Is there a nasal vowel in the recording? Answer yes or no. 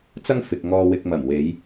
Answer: no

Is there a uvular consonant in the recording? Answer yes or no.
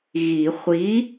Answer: yes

